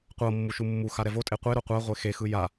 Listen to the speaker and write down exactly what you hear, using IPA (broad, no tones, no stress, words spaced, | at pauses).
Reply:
qʷɤ mːuʃumːuxa ɾɛvotʼe qʷeɾo qʷa ʁʷexexɯ ja